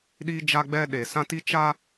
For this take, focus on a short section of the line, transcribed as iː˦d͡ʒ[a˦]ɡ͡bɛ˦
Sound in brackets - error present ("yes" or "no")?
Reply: no